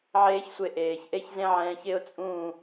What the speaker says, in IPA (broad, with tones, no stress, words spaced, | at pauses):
ʕeː˦çsʷe˧ ʔeː˨çʔe˦çzẽ˦ ʕɛ̃ː˧çɪ˦ʊ̯t͡sʼũː˦˨